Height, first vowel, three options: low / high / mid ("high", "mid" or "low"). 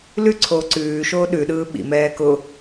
high